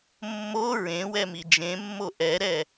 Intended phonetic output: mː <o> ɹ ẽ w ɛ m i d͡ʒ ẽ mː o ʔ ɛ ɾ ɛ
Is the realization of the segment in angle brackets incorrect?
no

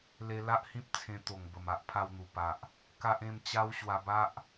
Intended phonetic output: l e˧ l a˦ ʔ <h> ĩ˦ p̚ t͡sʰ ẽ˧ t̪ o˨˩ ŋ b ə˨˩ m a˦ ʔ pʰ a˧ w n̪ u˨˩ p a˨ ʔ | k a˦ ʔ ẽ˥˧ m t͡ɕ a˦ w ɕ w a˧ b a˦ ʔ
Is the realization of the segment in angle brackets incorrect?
no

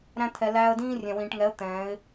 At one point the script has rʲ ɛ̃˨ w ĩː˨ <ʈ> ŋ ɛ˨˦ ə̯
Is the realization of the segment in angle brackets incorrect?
no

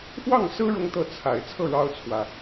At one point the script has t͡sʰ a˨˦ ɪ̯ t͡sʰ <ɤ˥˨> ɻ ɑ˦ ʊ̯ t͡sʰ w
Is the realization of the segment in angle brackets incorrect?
no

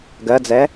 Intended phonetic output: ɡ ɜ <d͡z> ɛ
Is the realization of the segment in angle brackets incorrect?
no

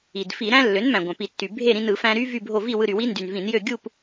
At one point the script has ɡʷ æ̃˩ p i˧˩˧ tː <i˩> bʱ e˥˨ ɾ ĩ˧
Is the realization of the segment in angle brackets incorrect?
yes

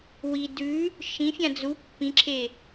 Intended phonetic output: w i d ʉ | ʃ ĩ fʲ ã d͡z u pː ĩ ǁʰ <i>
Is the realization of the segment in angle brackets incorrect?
yes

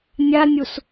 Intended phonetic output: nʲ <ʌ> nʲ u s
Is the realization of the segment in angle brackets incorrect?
yes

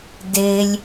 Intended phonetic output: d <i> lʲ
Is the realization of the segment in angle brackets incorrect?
yes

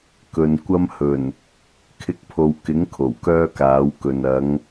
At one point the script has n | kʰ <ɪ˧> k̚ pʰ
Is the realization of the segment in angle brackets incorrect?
no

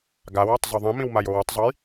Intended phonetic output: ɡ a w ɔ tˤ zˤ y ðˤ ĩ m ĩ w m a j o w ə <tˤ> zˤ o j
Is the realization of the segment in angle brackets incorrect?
no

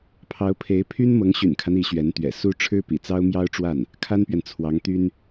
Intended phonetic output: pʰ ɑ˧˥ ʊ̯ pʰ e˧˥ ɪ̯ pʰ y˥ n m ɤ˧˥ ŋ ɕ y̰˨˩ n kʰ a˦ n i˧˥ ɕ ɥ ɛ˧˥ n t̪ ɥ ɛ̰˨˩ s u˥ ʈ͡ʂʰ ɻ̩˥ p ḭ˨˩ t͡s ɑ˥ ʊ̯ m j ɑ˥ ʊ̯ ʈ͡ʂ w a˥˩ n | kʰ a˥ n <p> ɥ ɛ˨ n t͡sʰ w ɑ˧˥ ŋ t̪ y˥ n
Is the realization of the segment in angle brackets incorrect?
no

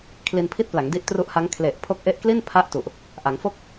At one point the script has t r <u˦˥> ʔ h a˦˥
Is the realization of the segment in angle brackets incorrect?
no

